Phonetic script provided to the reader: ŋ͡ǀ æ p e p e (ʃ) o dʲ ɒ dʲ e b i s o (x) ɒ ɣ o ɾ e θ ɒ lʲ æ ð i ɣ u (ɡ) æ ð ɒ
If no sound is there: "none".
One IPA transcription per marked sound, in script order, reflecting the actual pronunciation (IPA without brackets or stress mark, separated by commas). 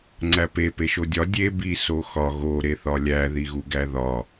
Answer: ʃ, x, ɡ